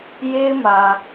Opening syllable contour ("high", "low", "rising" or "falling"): high